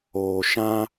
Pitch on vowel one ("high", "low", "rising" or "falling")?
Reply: low